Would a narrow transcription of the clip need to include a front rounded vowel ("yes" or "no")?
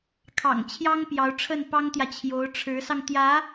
no